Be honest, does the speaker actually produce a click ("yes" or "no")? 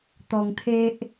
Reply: no